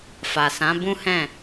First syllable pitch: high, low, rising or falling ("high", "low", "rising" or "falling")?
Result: low